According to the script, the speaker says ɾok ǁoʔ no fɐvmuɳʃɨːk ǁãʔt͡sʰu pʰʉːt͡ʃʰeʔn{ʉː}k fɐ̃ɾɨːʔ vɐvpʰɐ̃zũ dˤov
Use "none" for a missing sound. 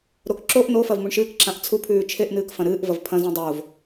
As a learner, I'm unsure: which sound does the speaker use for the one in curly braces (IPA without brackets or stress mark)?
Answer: ɨː